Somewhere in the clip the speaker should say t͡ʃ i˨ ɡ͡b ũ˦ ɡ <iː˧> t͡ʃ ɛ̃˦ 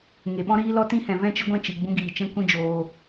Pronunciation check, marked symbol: incorrect: iː˨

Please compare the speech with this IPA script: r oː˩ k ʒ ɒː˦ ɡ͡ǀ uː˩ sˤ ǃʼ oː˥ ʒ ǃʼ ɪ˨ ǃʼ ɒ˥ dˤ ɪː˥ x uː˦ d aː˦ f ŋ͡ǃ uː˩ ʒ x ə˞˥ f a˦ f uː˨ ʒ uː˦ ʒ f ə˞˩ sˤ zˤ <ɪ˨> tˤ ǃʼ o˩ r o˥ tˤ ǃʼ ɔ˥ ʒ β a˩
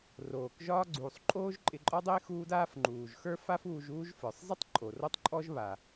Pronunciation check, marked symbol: incorrect: ɪ˥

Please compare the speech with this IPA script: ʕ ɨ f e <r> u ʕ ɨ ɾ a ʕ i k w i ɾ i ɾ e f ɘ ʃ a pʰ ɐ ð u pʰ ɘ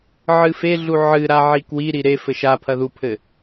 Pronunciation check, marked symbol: incorrect: ɮ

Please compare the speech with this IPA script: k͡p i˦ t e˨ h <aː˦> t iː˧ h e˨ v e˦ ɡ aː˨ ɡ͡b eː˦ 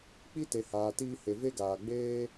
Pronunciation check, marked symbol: incorrect: aː˨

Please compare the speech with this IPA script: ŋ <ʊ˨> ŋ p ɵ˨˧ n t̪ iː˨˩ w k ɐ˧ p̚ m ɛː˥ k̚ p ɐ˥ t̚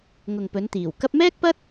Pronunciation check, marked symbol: correct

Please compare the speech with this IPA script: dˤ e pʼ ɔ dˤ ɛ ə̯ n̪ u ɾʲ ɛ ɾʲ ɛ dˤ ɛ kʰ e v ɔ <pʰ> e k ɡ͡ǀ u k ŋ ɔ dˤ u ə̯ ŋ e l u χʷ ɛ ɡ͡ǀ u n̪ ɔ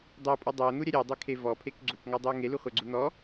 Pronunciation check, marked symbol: correct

